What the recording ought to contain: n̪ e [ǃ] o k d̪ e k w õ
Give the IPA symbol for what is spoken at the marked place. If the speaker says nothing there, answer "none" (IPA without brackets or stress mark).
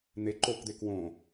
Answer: ǃ